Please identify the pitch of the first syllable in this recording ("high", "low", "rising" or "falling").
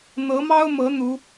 rising